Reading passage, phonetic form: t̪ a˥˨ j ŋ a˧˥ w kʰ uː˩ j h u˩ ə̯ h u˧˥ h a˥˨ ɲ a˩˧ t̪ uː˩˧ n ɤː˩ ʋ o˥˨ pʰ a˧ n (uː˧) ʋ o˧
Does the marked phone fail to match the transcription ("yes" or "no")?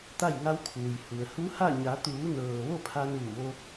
yes